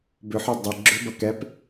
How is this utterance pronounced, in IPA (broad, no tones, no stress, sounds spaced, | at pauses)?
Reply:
b ʏ ħ ʏ dˤ ɪ ɡ͡ǁ ʏ b ɐ k ɛ p